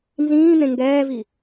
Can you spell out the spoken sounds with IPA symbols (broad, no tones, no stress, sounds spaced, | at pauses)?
n z ĩː n̪ ẽ ŋ ɡ ɛː v i